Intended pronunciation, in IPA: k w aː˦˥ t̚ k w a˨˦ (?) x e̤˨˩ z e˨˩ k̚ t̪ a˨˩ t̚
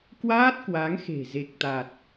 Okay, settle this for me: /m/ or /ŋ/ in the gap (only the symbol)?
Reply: ŋ